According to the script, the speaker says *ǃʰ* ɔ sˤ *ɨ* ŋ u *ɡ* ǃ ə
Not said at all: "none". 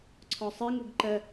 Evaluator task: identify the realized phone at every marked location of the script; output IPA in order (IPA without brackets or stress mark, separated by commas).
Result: ǀʰ, ɨ, ɡ